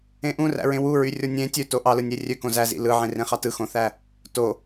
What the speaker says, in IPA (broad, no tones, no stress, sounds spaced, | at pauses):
ẽ ʔ ũ r æ̰ ɹ ẽ w u ɹ y rʲ o nʲ ẽ tʲ ø t o ʔ ɑ l ɯ nʲ e rʲ ø k õ z æ z ḭ l ɯ ʕ ẽ r ẽ χ ɑ t ɯ x õ θ æ | t o